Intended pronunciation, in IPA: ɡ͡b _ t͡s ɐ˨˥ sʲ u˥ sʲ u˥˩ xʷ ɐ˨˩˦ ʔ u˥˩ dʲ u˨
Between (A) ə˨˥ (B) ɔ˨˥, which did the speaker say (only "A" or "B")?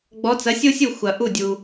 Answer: B